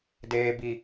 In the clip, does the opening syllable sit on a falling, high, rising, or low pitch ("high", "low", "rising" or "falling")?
high